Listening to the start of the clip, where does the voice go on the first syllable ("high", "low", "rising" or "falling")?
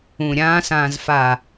low